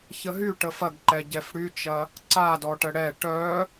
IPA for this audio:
ç ə ɦ y ʈ ə f ɐ ɡ ǃ ɛ ɟ ɛ f ɽ y t͡ʃ ɐ | ǀ a d ɔ ʈ ə ɽ ɛ ʈ œ

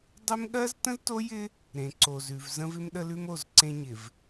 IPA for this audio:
dˤ ɪ˦ m ɠ ɜ˦ z t ə̃˦ z t o˦ j ɪ˦ | ɾ ẽ˨ ǀ o˨ z ʉ˨ v z ə̃˦ v ɪ˦ m ɗ ə˦ l ʉ˦ m o˦˨ z ǀ ẽ˦ ɲ ɪ˨ v

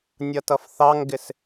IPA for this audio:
nʲ ʌ t ʌ f θ ɑ ŋ ɡ ɪ s

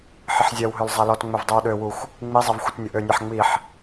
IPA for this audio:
ħ ə ħ zʲ ɛ w ɦ ø l zˤ a l ɔ t ŋ͡m ø v dˤ y w ɗ ø w u xʷ | ŋ͡m i zˤ ɛ v xʷ ə t nʲ ə ʔ ø nʲ a ħ ŋ͡m i ħ

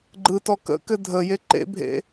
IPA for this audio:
ɡ͡ǃ ɯ t ɔ k ə̰ k ɘ dʱ ə j e ǃ ḛ bʱ ḛ

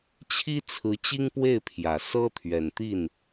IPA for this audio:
t͡ɕʰ i˥ t͡sʰ ɹ̩˧˥ t͡ɕ i˥ ŋ p w e˥˩ ɪ̯ pʰ j ä˨˩ s ɤ˥ t̪ʰ ɥ ɛ˨˩ n t̪ i˥˩ n

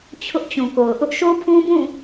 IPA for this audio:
t͡ɕʰ ʊ˦ ʔ t͡ɕ ũ˨ k o˨ ʊ̯ ʔ ʊ˦ ʔ ʃ o˦ pʰ ũ˦ b ũ˦˨

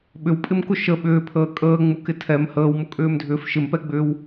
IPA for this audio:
ɓ ʏ w pʼ ɪ m k ʊ ʃ ə ɓ ʏː pʰ əː kʼ əː ŋ͡m u k ɪ tʰ ɛ m h əː w m ʊ kʼ ʏː m dʱ ʏː f ʃ ɪ m p ɛ ɡ͡b ʏː w

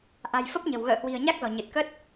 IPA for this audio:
ʔ a̤˨˩ j f ə˦˥ p̚ ɲ ə̤˨˩ w ɣ ə̰ː˧˨ h w i̤˨˩ ə̯ ɲ a˦˥ k̚ z ɔ̤˨˩ ɲ ɨ˨˩ t̚ k ə˦˥ t̚

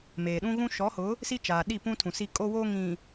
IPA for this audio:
m eː˨ ɗ ũ˦ ɣ ũ˦ ʃ ɔ˨˦ h ʊ˨˦ | s i˦ t͡ʃ aː˨ ɗ i˦˨ p ũ˦ tʰ ũ˨ s i˦ kʼ o˦ w o˦ ŋ ĩ˨

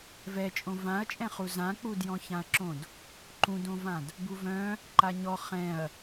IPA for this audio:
v ɛ t͡ʃʼ õ v ã ɐ̯ t͡ʃʼ ɛ̃ χ u z ã k͡p u d j ɔ̃ ç ã ɐ̯ ǁ õ d | ǃ ũ d õ v ã d | b u v œ̃ | ǃ a ɲ ɔ χ ɛ̃ ɐ̯

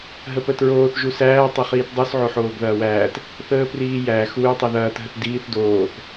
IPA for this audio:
ɦ ə p ə t ɹ oː θ ʒ u s æː tˤ ʊ χ iː t dˤ ʉ s ʕ o ħ oː ɡ ð ɐː w æː t | θ əː p r iː j æ x u j tˤ i ð ɐː t ɦ ə t d iː θ d oː θ

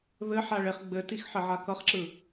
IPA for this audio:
β ɘ ħ a ɭ e χ ɡ͡b ɘ t i x ħ ɘ ʕ a k ʌ χ ǁ ɯ

